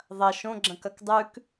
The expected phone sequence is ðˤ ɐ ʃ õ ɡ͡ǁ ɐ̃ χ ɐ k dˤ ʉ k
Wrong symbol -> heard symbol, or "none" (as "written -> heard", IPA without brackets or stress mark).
χ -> k